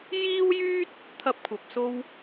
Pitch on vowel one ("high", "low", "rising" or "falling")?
high